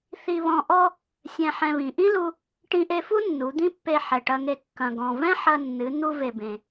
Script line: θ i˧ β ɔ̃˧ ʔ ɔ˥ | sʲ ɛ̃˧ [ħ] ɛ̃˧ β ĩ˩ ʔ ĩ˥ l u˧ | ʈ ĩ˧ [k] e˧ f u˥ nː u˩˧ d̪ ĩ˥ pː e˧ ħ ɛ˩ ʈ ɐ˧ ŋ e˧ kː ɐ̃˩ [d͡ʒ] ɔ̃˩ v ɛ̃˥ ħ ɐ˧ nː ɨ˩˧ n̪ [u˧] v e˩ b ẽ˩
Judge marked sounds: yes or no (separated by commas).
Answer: yes, no, no, yes